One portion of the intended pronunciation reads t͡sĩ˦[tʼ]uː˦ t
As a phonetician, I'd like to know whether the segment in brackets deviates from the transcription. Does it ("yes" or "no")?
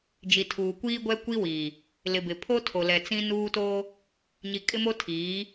yes